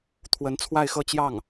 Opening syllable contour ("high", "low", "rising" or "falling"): rising